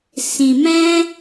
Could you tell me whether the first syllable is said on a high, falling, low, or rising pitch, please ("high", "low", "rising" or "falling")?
low